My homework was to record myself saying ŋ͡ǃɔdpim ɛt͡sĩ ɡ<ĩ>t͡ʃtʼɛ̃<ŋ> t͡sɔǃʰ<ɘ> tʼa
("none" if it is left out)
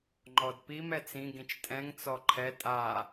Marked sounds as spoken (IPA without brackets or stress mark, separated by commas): ĩ, ŋ, ɛ